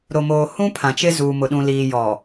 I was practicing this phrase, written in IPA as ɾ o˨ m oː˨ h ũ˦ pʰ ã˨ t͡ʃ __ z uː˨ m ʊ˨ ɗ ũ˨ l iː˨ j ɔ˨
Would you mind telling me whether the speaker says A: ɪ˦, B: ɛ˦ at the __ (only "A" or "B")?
A